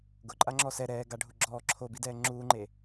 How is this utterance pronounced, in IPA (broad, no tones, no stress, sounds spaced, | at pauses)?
ɡ ʊ ǃʼ a ŋ͡ǁ ɔ s ɛ ɾ ɛː ɡ a ɖʱ u ɡ͡ǁ ɔː ǁʰ o b i d ɛː ŋ͡ǁ uː ŋ͡ǃ e